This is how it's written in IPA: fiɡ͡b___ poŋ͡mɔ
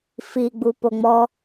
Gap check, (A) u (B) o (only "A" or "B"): A